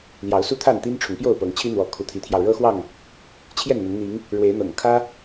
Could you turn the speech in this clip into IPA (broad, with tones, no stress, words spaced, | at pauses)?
ljɑ˨˦ʊ̯su˦t̪ʰa˥˨nt̪i˦n ʈ͡ʂʰʊ˨˦ŋpjo˥˨ʊ̯pɤ˨˦ŋ t͡ɕʰi˦n̪wɔ˨˦ kʰu˨˦t̪ʰi˨˦t̪ʰjɑ˧ʊ̯ ɻɤ˦xwɑ˥˨ŋ | t͡ɕʰjɛ˥˨nn̪ə˨˦n n̪i˨˦ŋ | ɻwe˨˦ɪ̯n̪ɤ̰˨˩ŋ kʰä˦